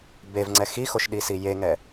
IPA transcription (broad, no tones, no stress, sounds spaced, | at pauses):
b e v ŋ͡ǀ ɛ x i x o ʃ ɗ i s i j e ŋ ɛ